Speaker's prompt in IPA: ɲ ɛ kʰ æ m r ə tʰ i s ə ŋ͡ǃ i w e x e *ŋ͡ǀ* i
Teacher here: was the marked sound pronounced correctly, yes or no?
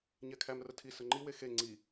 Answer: yes